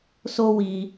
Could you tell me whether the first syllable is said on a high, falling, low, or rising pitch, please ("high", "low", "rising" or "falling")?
high